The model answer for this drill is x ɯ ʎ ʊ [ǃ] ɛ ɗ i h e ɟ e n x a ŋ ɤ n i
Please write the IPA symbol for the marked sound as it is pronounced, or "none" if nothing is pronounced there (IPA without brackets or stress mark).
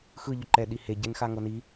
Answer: ǃ